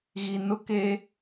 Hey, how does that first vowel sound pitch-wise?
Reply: low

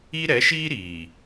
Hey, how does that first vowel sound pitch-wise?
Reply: high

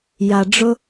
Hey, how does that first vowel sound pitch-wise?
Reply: low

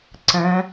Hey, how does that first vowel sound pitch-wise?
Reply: rising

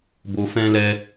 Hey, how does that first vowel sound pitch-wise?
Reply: low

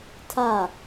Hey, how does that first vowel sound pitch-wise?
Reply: falling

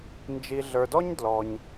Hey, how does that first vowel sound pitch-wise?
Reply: low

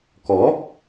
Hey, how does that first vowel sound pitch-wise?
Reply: rising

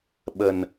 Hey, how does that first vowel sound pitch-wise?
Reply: low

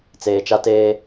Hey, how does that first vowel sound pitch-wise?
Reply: low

